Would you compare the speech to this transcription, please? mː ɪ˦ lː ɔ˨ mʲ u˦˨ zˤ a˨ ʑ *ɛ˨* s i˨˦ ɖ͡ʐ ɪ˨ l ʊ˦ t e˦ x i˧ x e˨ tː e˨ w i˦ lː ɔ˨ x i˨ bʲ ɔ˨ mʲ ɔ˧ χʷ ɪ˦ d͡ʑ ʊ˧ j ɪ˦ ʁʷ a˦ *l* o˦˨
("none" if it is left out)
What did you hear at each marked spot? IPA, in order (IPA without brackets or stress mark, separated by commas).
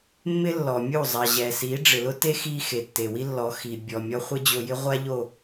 ɛ˨, ʎ